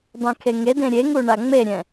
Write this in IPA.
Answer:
dˤ ɛ̃ kʰ e ŋ e d ẽ ɾʲ e ŋ u ɳ a ŋ͡m e ɾʲ ɛ̃

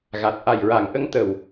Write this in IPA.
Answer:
ɣ a˨˩ t̚ ʔ a˨˩ j ɹ a˨˩˨ ŋ ʔ ə˧˥ ŋ t̪ ə˨˩ w

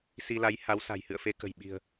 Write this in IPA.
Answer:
s i˧ l a˨˦ j h a˨˦ w s a̤˨˩ j h ɨ̰˧˨ ə̯ f e˧ k ə̤˨˩ j ɓ i̤˨˩ ə̯

